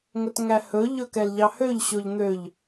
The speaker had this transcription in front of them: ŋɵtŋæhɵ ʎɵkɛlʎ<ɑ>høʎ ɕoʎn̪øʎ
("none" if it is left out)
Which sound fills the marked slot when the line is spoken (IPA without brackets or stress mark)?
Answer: ɑ